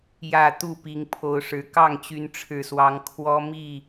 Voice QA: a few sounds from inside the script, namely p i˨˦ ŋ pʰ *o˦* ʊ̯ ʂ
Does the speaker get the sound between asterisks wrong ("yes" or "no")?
yes